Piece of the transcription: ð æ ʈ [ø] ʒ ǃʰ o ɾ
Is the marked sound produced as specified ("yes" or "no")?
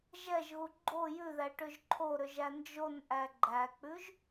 yes